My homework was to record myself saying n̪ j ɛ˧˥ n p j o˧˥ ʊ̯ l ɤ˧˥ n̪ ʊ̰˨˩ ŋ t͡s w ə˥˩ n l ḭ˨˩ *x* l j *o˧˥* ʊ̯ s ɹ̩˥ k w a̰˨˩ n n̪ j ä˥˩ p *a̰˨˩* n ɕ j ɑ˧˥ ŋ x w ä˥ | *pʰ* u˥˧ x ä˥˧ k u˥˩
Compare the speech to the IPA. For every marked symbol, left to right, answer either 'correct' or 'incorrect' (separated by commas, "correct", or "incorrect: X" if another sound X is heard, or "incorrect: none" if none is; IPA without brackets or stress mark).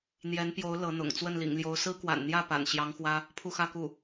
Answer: incorrect: ŋ, correct, correct, correct